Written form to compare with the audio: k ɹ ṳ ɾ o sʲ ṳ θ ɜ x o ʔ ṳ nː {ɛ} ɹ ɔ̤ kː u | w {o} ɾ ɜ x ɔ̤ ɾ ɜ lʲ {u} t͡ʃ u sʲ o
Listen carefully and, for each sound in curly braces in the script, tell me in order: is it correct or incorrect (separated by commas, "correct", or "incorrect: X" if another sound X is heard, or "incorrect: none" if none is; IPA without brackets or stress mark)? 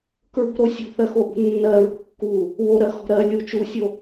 incorrect: ɜ, correct, correct